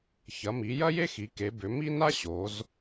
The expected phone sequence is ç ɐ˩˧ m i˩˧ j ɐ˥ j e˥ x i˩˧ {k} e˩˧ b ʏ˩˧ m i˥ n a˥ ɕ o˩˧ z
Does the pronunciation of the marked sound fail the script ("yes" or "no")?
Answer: no